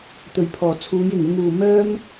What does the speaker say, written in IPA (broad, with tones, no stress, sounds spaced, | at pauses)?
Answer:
t̪ ɵ˨˩ ɥ pʰ ɔː˨˩ t͡sʰ uː˨˧ j ɪ˨˩ ŋ ɪ˧ ŋ uː˨ m œː˥ m